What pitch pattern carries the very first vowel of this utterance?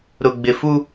low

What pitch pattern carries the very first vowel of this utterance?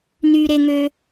high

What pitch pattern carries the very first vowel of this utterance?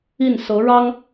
falling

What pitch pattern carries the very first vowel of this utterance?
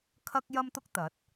high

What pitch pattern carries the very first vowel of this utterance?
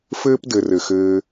high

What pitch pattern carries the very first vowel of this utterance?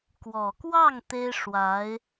low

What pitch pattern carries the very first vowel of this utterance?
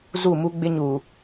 falling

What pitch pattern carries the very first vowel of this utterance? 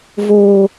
low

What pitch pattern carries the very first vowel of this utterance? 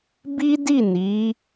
high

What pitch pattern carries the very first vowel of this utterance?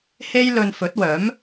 high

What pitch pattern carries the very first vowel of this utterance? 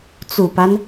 low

